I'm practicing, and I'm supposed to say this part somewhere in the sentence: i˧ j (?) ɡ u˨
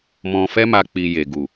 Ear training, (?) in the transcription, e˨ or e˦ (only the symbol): e˨